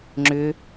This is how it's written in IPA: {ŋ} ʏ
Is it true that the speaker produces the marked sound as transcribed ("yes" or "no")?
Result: no